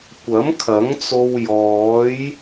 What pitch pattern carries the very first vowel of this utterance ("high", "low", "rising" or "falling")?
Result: rising